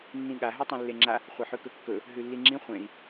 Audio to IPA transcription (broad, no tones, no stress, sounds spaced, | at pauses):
nː ĩ ɠ a ɦ ʉ tˤ ẽ lː e ŋ͡ǁ a | χʷ ɐ ħ ʉ k ɵ kː ɵ | ɦ ʉ lː i ŋ͡ǁ ĩ χʷ ẽ i̯